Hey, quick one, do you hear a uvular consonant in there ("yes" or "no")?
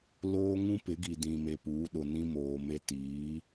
no